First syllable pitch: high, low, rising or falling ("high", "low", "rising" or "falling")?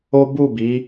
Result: high